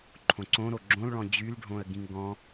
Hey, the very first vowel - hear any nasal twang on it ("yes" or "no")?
yes